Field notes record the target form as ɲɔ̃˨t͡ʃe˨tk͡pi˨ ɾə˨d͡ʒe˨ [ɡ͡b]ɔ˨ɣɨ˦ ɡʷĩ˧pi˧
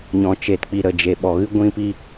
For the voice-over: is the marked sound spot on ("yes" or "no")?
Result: no